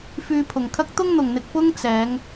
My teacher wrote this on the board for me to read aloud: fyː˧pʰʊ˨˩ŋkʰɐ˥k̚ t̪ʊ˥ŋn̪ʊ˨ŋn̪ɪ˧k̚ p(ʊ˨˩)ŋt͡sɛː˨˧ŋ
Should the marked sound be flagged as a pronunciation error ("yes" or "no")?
yes